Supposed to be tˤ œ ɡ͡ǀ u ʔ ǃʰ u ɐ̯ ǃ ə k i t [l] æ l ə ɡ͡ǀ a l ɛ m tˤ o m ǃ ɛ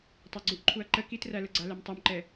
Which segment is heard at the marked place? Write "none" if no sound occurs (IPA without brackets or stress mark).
r